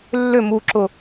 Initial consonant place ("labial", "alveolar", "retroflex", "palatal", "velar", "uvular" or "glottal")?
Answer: alveolar